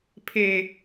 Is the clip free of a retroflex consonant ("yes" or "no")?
yes